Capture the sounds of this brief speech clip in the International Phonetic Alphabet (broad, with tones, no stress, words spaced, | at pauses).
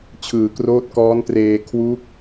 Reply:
t͡ɕʰɯː˩˦kroː˦˥t̚kɔː˦˥ntreː˧ kʰwu˦˥k̚